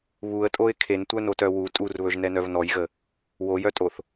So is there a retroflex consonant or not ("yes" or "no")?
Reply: no